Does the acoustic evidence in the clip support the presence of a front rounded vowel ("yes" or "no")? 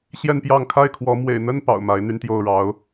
yes